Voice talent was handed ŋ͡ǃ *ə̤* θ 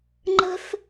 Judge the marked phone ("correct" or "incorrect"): correct